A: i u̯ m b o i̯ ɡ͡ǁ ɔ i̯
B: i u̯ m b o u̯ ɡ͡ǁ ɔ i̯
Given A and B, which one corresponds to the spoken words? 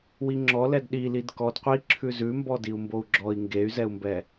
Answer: B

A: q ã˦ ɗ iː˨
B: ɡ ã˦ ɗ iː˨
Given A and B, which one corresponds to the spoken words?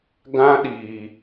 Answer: B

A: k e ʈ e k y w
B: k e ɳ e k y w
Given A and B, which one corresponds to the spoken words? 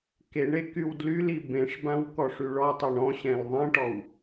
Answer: B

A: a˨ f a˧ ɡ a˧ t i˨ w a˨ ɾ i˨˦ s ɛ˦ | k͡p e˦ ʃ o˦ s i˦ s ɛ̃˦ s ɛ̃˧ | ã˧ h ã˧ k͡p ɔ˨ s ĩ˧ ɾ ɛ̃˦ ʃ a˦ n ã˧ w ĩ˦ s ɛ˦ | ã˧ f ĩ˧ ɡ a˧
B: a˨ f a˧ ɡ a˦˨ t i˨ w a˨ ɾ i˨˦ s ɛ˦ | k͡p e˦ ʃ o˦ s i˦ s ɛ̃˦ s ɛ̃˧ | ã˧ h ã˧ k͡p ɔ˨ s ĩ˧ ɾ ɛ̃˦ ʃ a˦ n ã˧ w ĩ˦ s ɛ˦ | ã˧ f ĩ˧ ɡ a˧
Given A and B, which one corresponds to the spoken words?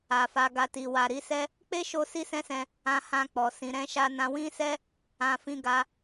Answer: A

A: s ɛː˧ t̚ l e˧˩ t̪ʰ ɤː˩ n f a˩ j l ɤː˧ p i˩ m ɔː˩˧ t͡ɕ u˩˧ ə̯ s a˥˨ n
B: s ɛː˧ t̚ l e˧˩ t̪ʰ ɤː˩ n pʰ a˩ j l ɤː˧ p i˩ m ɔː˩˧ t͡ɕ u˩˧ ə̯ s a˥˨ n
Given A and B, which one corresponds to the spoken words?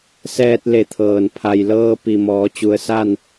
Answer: B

